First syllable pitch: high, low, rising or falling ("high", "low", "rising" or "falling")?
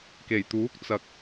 low